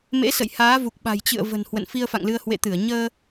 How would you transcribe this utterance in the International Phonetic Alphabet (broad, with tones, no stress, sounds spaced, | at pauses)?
m ḛ˧˥ s ə̰˧˨ j h aː˨˦ v u˨˩ k̚ ɓ a̤˨˩ j t͡ɕ ɨ̰˧˨ ə̯ v ə̤˨˩ n h w ə̰˧˨ n f i˧ ə̯ f a̰˧˨ ŋ l ɨ˧ ə̯ h w ḛ˧˨ t̪ ɨ˧˩ ə̯ ɲ əː˧